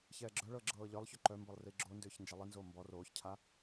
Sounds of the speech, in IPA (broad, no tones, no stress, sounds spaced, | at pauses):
ç ɛː ɡ͡ǁ œ ɭ ɤː ɡ͡ǁ ɤː ʎ œ lˠ ç ʏ ǃ œ m b ɤ lˠ r i ɡ͡ǁ o n d ʏː ç n d͡ʒ ɛ lˠ i n z oː m b ɔ r oː ç cʰ a